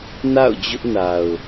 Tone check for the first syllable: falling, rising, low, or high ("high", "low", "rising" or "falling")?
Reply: falling